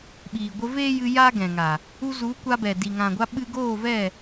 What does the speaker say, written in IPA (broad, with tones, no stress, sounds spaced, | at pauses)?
ɓ iː˨ ɡʷ ə˧ v eː˦ j ɨ˧ j aː˦ ɡ ɛ̃˨ ŋ a˨ | u˧ z u˨˦ kʷ a˧ b ɛ˨ d i˨ ŋ ã˨ ɡʷ a˧ ɓ ɨ˧ ɡ oː˦˨ v ɛ˦˨